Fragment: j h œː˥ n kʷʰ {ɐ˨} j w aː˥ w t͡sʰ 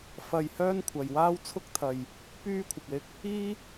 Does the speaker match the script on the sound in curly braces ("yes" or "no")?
yes